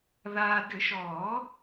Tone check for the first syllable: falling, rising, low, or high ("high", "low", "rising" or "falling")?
low